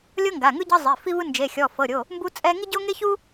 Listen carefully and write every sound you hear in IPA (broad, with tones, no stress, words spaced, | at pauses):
lʲɤ˥ŋɡa˩˧˩ŋɯ˥ ɟɤ˥zˤi˩˧˩fi˥vɯ˥ nd͡ʒe˩˧˩xʲɔ˩˧˩fɤ˩˧˩ɾʲo˩˧˩ | mbu˥t͡sʼɛ˥ ŋi˥ɟo˥ŋe˥çu˥